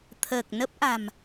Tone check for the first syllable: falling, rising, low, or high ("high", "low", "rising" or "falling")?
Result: low